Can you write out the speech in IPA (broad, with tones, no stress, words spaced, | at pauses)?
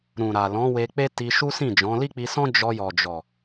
ɾũ˨ ɾa˨lɔ̃˨˦ we˧k͡pe˦ ti˧ʃu˦sĩ˦˨d͡ʒɔ̃˨˦ li˦k͡pi˧sɔ̃˦ d͡ʒɔ˧jɔ˨d͡ʒɔ˨